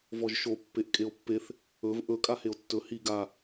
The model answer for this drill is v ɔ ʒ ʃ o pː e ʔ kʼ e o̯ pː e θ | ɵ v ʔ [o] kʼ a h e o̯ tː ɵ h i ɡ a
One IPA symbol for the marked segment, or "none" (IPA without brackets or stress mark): ɵ